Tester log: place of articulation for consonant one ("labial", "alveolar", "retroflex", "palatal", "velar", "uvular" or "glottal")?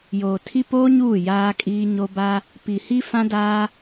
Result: palatal